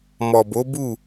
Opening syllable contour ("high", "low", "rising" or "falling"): low